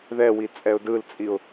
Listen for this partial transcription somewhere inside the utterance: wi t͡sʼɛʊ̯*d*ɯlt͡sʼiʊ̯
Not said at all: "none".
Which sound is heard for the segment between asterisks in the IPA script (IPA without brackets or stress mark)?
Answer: d